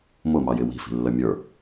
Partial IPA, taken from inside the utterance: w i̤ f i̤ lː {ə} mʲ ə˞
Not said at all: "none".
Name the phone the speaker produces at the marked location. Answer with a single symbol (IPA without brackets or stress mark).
ə